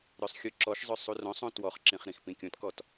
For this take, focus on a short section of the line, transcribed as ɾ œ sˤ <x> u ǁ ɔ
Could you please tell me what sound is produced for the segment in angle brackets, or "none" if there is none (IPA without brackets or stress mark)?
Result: xʲ